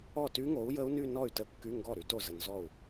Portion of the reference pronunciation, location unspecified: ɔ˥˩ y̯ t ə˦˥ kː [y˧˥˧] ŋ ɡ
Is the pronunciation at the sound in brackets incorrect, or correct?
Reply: correct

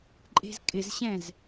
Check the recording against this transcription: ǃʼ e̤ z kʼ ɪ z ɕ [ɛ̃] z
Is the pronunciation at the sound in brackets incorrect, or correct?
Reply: correct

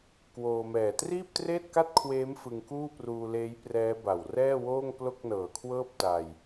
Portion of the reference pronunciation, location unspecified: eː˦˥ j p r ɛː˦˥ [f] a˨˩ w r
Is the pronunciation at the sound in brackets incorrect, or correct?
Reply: incorrect: b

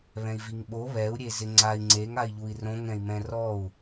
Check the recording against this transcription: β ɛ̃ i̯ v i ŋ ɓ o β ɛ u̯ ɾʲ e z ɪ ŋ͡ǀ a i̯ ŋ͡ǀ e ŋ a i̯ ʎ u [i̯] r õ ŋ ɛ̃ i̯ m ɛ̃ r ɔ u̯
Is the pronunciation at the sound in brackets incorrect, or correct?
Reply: correct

